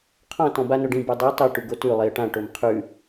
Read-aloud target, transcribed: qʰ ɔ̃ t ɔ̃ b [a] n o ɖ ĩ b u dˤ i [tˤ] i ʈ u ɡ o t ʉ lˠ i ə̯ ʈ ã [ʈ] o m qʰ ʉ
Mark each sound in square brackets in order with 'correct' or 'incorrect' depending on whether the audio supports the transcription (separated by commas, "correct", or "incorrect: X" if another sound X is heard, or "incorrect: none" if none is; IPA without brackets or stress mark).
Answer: correct, correct, correct